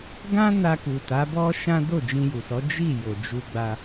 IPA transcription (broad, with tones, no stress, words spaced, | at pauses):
ɡã˦na˧ku˨ ta˨˦bɔ˦ʃã˦ do˦˨d͡ʒĩ˧ju˨sɔ˨˦ d͡ʒi˦˨ jo˨d͡ʒu˧ɡ͡ba˧